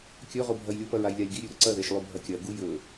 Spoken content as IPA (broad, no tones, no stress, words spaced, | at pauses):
kʲɵʁobʱɐj lʲopɐɹajlʲalʲ ɡiɾʲʉɾɵ ǀɐðeʃlˠʉbʱɐ kʲɐɡu jɵ